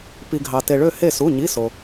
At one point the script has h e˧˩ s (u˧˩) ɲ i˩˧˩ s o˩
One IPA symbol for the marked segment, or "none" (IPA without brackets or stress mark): u˩˧˩